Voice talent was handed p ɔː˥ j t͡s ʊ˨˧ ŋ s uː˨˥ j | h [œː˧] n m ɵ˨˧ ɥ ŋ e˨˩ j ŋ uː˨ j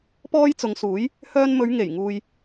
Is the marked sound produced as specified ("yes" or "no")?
yes